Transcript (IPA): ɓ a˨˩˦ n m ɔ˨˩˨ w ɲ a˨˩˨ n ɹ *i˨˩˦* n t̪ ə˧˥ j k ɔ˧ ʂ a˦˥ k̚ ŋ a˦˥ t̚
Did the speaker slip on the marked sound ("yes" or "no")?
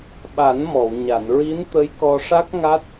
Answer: yes